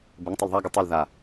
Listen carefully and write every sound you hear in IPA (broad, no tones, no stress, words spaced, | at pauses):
bɘŋtˤal ðˤaɡɯ tˤɯl ða